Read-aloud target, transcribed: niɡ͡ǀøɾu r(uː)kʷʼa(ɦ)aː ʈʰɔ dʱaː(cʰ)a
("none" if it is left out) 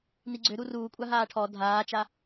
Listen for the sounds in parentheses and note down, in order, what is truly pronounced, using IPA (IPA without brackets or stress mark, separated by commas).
uː, ɦ, t͡ʃ